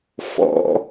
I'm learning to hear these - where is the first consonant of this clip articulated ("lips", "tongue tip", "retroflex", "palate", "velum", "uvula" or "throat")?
lips